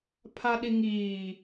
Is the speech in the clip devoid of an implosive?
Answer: no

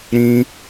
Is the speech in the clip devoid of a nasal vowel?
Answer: no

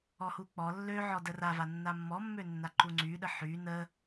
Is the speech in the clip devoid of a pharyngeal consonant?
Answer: no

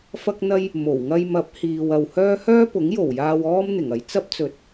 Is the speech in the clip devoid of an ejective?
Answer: yes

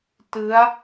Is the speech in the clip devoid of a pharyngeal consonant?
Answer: yes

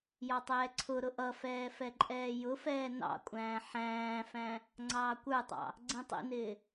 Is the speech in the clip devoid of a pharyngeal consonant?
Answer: no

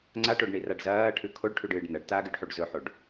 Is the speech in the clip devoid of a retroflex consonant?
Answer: no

